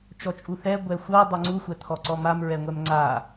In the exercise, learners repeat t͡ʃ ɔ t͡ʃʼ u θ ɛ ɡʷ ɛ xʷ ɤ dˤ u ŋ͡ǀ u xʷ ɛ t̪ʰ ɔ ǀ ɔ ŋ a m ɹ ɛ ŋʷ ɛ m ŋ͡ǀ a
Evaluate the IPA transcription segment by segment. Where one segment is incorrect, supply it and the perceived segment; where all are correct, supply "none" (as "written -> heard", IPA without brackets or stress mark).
ŋ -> m